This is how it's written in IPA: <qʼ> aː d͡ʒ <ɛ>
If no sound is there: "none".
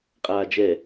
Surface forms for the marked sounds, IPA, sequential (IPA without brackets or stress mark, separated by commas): qʼ, ɛ